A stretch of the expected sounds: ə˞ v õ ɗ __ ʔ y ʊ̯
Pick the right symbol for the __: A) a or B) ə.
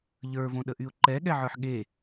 B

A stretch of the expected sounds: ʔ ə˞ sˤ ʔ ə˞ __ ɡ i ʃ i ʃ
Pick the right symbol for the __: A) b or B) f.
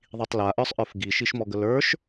B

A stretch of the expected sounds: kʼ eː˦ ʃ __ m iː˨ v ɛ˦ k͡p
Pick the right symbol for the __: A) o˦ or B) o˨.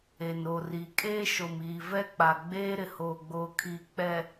B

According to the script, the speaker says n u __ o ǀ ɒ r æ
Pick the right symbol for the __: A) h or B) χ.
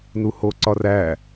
A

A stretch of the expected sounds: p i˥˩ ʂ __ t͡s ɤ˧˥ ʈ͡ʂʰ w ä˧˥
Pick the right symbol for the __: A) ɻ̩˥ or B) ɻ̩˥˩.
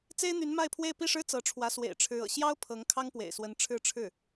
A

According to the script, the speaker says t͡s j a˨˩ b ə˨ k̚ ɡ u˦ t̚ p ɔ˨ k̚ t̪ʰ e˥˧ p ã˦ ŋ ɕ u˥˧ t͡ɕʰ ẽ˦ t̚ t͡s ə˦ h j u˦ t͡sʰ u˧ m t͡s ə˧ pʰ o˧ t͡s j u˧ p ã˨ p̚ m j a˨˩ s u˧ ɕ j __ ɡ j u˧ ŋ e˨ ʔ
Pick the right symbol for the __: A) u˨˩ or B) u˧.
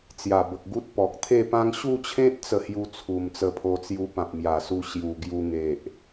A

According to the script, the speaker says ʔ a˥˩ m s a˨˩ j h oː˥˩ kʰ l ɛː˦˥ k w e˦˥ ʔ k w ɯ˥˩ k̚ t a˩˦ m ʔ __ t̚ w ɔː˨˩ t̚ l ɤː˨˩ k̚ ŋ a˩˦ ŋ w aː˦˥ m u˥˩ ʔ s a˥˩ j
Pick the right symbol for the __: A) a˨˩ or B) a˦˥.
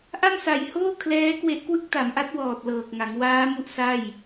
B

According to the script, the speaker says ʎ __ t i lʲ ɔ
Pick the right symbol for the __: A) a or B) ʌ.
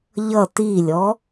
B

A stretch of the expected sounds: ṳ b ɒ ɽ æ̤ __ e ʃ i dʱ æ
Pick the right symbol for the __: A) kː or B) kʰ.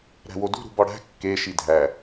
A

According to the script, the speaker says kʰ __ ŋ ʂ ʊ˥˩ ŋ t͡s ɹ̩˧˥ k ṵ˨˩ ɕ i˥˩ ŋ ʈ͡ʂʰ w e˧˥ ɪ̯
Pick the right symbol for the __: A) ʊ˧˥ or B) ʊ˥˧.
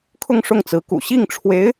B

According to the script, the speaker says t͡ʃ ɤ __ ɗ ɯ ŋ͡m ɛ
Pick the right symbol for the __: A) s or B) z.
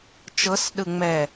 A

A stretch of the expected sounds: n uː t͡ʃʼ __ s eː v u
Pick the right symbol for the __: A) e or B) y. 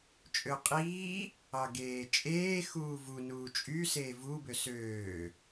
B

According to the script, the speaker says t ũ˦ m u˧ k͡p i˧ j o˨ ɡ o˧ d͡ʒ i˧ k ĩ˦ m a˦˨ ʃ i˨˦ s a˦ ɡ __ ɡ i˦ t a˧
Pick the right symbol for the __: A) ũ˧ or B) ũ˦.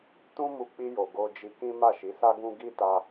B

